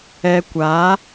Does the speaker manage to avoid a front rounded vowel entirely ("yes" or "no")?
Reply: yes